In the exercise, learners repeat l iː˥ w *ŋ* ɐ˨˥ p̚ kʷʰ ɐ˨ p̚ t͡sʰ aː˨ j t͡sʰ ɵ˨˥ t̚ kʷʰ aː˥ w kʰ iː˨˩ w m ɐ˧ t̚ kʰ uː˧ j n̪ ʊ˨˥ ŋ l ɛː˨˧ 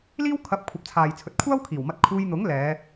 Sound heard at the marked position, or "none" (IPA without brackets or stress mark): kʰ